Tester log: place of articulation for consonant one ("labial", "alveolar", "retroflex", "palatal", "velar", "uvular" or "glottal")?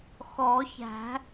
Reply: velar